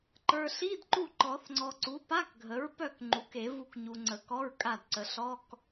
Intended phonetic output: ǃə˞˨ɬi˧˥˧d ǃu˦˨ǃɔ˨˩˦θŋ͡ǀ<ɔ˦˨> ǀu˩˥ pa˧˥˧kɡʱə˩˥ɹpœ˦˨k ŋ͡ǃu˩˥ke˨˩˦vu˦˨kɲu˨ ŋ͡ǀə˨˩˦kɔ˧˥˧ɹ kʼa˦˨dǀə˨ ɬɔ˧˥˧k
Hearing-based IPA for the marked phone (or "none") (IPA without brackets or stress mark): ɔ˨